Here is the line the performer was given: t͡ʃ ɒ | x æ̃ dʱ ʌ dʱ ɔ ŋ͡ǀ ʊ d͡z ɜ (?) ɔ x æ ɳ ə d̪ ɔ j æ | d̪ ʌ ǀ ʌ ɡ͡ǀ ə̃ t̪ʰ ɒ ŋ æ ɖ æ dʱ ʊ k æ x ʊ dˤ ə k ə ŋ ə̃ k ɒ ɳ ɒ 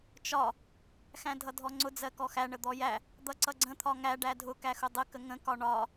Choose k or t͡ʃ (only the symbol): k